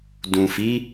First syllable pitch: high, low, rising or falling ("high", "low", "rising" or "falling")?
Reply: low